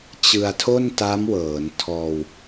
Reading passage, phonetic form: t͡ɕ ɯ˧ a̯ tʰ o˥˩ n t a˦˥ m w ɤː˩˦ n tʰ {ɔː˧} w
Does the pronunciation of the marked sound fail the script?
no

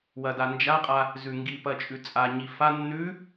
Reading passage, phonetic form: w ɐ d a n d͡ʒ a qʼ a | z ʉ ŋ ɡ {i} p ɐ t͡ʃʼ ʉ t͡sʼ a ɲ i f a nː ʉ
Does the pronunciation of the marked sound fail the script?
no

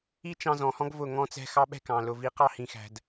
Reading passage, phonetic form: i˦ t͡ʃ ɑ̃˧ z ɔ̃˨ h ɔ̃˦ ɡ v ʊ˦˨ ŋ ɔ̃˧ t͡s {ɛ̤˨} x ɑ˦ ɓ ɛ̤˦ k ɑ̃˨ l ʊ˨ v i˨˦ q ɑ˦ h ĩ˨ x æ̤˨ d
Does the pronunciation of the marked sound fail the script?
yes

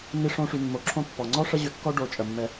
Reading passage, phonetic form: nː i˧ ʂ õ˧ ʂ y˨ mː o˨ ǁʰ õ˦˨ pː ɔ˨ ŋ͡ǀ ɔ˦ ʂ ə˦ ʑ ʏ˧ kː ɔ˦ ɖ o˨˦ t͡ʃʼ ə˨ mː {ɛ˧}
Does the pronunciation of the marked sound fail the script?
no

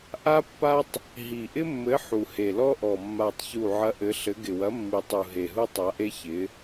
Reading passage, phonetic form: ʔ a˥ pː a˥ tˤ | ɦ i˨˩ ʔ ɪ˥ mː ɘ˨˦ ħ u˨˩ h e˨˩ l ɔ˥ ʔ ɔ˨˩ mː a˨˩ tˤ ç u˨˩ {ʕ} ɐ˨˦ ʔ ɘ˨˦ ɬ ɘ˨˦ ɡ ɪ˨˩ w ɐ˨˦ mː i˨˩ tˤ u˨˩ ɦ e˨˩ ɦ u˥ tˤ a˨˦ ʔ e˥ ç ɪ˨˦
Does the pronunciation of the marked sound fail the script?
no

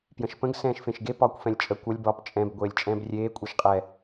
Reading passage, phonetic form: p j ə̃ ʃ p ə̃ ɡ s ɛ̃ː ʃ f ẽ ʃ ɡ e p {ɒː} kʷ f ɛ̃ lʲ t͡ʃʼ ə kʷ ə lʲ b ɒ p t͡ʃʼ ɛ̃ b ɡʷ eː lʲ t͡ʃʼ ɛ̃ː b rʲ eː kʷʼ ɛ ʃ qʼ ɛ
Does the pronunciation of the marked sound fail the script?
no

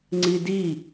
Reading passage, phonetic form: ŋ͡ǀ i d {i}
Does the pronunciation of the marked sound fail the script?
no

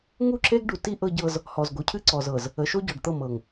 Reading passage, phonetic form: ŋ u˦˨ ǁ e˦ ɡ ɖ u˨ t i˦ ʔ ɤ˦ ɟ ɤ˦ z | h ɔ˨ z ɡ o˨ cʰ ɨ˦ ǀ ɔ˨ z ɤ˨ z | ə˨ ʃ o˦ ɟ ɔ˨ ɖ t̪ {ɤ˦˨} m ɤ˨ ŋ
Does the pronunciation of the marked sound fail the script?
no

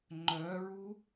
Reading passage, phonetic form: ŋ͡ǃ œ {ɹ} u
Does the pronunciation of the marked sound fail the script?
no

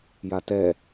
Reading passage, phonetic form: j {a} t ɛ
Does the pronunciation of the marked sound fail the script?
no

